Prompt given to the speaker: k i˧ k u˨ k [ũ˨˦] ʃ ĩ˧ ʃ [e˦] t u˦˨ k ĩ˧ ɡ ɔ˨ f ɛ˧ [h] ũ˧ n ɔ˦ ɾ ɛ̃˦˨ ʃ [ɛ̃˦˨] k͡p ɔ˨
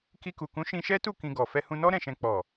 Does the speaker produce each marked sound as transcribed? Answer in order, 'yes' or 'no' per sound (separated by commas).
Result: yes, no, yes, no